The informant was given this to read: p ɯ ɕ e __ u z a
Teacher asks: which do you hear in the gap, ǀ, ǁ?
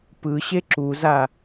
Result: ǁ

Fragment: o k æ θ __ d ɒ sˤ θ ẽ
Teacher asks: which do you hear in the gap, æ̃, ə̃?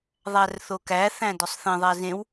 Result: æ̃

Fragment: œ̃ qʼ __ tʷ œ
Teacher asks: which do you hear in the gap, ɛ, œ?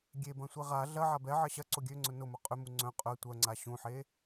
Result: œ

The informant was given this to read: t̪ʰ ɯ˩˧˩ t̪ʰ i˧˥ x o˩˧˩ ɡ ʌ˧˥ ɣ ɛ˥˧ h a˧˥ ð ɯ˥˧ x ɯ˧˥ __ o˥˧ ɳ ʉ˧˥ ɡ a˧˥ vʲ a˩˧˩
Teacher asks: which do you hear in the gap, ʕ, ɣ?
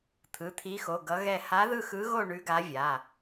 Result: ɣ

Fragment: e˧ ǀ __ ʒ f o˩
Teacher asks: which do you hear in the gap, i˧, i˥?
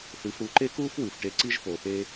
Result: i˥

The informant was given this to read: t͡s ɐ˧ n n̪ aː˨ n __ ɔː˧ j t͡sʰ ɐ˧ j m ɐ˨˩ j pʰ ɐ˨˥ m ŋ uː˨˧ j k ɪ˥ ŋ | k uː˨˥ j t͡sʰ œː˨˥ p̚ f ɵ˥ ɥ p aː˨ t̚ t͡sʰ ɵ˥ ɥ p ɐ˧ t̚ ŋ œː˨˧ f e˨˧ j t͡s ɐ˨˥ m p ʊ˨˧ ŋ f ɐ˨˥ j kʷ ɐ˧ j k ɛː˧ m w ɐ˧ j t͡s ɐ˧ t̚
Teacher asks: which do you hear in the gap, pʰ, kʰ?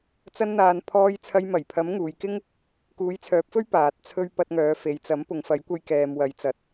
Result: pʰ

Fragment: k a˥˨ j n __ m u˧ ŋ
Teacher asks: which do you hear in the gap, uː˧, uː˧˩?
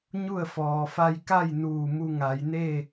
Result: uː˧˩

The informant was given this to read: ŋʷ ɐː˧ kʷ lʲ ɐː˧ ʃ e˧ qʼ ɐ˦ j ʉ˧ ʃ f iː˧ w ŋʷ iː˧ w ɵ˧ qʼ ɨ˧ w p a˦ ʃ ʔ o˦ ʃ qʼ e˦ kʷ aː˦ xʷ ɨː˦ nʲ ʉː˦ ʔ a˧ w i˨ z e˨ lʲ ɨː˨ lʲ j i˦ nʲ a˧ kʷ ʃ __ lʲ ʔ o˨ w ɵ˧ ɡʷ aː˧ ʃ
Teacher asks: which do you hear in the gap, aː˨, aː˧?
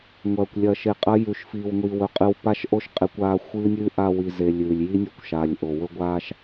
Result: aː˨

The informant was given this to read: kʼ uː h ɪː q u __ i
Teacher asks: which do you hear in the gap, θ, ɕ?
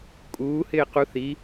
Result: θ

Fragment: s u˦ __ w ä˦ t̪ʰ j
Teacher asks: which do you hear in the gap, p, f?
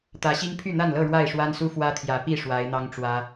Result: f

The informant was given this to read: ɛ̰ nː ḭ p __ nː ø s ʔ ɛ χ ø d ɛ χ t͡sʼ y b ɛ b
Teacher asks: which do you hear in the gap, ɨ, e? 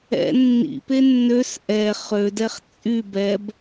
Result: e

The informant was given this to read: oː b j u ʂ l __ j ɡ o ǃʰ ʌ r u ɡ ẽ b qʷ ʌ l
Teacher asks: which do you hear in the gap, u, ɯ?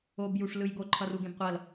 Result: ɯ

